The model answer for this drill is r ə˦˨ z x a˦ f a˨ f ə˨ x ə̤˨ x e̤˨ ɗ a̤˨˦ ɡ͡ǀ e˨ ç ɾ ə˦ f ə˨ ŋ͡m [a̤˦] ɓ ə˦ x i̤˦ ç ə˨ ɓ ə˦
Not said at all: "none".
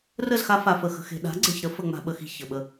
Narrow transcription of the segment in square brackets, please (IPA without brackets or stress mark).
a̤˦